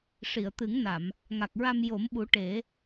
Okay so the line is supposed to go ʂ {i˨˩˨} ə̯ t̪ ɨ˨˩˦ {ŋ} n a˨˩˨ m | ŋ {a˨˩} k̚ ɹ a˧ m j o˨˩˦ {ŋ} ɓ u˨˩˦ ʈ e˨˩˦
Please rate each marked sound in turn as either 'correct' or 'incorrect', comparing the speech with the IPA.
correct, correct, correct, incorrect: m

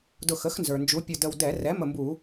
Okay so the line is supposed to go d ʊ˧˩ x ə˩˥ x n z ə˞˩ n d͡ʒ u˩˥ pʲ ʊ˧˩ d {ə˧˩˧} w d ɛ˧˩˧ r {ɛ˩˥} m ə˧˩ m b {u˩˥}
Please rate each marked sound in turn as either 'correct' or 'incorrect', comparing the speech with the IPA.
incorrect: ə˧˩, correct, incorrect: u˧˩˧

